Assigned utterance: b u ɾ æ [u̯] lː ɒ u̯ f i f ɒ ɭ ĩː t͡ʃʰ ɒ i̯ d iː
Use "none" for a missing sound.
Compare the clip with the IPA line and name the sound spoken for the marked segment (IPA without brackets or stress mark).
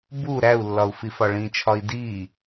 u̯